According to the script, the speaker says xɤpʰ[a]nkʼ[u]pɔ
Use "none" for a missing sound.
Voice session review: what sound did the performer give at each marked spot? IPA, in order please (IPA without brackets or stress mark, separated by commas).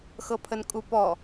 ə, u